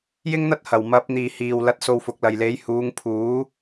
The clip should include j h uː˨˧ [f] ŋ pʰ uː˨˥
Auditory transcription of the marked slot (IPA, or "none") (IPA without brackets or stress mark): none